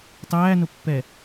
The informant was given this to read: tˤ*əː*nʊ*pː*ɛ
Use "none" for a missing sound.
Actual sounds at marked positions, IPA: æː, pː

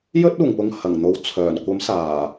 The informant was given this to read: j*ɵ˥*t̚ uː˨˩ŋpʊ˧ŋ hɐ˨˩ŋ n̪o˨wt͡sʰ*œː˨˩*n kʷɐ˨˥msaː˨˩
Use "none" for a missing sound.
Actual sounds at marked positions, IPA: ɵ˥, œː˨˩

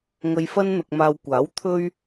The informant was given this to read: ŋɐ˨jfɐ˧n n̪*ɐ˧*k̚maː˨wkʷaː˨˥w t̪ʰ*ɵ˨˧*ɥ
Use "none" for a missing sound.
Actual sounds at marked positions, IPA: ɐ˨, ɵ˧

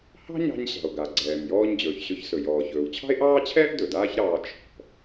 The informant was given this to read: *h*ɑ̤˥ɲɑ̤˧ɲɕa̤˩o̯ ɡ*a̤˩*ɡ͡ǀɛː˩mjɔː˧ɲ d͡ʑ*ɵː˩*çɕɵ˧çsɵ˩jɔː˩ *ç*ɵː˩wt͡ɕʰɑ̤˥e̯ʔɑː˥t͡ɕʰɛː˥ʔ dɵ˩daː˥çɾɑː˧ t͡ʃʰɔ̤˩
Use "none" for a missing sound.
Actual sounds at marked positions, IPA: h, a˩, ɵː˩, ç

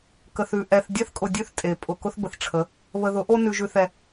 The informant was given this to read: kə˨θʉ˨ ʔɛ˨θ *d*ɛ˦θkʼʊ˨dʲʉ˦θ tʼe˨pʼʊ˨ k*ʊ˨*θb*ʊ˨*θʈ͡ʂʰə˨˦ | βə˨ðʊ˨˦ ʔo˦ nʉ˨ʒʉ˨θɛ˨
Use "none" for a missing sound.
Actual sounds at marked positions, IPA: dʲ, ʊ˦, ə˨

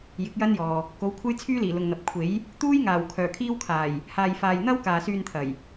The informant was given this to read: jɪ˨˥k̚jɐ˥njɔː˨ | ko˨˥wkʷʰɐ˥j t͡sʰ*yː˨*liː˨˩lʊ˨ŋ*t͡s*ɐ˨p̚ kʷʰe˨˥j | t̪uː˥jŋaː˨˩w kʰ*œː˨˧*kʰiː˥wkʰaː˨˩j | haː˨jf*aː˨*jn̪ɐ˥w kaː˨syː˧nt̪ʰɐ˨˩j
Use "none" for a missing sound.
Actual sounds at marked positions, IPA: yː˥, n̪, œː˨˩, aː˨

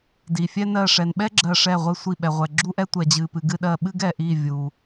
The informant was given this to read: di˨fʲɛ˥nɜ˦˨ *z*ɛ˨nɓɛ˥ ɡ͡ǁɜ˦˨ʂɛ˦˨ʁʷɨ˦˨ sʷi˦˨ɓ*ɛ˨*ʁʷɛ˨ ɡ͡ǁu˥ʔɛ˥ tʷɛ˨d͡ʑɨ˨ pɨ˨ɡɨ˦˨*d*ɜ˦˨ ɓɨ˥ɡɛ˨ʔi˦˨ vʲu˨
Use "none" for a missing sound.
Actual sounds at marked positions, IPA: ʂ, ɛ˨, ɗ

